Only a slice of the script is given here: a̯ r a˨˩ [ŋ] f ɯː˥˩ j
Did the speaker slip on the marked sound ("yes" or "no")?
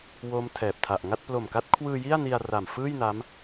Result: yes